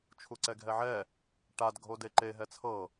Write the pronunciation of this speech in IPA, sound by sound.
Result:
t͡ʃʰ u ǀ ɛ ɡʱ ɛ ʕ ɛ | ʈ a d ɡʱ o d e ǃ e ɦ ɛ t͡sʰ ɤ

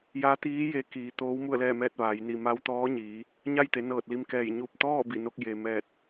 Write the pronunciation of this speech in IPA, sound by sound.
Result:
j a˧˥ t̪ iː˧˥ j e˧ k iː˩˧ t̪ oː˧˥ w m u˥˨ ə̯ l ɛː˥˨ m ɛː˥˨ t̚ ʋ a˩˧ j n i˧˩ m a˧˥ w t̪ ɔː˧˥ ɲ iː˩˧ | ɲ a˥˨ j t̪ e˩˧ n ɤː˧˩ t̚ l i˧ m k ɛː˧˩ j ɲ u˧˩ p̚ t̪ ɔː˥˨ b i˧˩ n o˧ k̚ j e˩ m ɛː˧˩ t̚

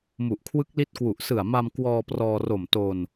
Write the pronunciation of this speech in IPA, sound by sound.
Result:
m u˨˩ ʔ kʰ w ɯ˦˥ k̚ l i˦˥ t̚ k w u˨˩ ʔ s ɯ˨˩ a̯ m a˧ m k w ɔː˧ p r ɔː˧ r o˨˩ m t o˧ n

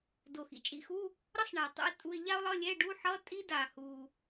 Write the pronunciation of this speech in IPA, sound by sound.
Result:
d o˨˩ x ḭ˨˩ t͡ʃʼ ḭ˧˥˧ x u˧˥˧ | ɾ ʌ˥ sˤ ɳ a˨˩ tˤ ṵ˥ ɪ̯ tʼ u˧˥˧ ɪ̯ ʎ a˥ ʊ̯ lˠ ʌ˧˥˧ lʲ ɛ˧˥˧ ɖ u˧˥˧ ħ ʌ˧˥˧ tʼ i˥ d a˨˩ h u˨˩

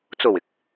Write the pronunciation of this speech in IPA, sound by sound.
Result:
t͡s o˨˩ w ɪ˨˥ k̚

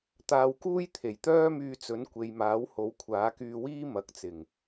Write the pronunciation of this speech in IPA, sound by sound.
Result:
t̪ aː˧ w k uː˥ j t̪ʰ e˨˩ j t̪ œː˥ m yː˧ t͡s ɵ˨˥ n kʷ e˨ j m aː˨˥ w h o˨˥ w kʷʰ aː˨˥ k yː˧ w iː˥ m ɐ˨˥ k̚ t͡s ɪ˨˩ ŋ

